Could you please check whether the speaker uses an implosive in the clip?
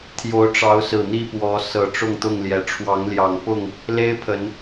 no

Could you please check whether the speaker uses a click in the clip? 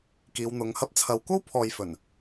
no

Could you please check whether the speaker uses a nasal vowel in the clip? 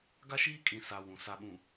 yes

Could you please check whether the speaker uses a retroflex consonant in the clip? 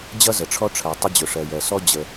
yes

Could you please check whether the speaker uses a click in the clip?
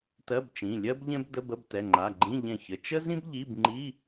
yes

